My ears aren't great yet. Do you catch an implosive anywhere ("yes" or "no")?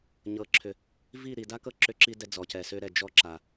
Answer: no